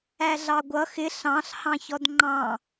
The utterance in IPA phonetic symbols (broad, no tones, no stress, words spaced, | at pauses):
æɮɑɡʷʌ xɪ ɬɑ̃ɬ hɑ̃çɔdŋ͡ǃɑ̃